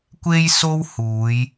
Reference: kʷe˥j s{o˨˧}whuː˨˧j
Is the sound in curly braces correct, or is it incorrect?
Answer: incorrect